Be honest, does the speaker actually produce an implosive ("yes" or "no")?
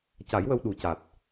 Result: yes